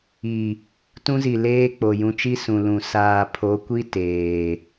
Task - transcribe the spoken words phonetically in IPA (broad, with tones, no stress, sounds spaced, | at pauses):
i˨ | t ũ˦ z i˨ l eː˦ k͡p o˨ j ũ˨ t͡ʃ i˦ s ũ˨ l ũ˨ s aː˨ pʰ o˨˦ kʷ i˦ t eː˨